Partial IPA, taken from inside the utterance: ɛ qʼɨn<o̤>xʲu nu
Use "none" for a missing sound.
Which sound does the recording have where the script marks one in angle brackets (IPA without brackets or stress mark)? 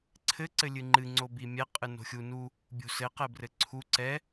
o̤